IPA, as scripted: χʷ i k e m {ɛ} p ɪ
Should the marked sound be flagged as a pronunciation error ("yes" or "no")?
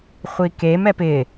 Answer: no